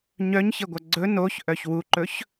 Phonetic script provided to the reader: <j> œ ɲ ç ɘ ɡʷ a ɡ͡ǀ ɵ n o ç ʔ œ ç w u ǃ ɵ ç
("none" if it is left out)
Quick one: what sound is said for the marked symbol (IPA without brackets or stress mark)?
ɲ